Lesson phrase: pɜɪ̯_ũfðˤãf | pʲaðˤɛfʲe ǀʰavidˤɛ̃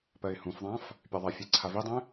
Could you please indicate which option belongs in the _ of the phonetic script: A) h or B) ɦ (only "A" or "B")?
A